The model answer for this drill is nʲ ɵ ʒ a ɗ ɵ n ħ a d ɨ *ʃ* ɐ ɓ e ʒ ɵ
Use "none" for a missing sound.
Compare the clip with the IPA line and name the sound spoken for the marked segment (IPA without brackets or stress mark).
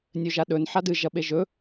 ʒ